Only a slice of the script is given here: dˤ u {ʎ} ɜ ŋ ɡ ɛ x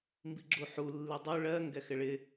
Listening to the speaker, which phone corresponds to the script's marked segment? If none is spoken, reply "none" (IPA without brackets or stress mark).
ɭ